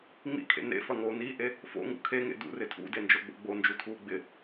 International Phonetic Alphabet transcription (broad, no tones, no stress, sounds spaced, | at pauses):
ŋ͡m ḭ kʰ ḛ n ḛ f ɐ ŋ oː n iː ʔ e | f o̰ ŋ ṵ kʰ e ŋ ḛ d ṵ r ɪ tʰ ṵ d e n d͡ʒ o ɡ͡b o̰ ɡ͡b o n d͡ʒ u tʰ uː ɡ͡b ɪ